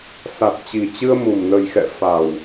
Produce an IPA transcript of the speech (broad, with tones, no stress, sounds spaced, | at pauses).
s a˨˩ t̚ t͡ɕ i˨˩ t͡ɕ ɨ˧ ə̯ m u˨˩ m n ə˨˩ j x ɛ̰˧˨ f a˨˩ w